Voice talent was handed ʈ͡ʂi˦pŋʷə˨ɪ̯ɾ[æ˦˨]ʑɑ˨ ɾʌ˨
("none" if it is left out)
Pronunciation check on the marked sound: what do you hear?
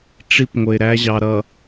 æ˦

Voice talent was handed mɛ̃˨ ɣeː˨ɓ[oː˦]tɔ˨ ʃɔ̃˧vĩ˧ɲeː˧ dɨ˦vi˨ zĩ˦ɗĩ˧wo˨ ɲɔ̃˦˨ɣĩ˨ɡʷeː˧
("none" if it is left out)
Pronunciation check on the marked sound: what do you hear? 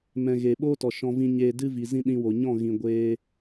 oː˦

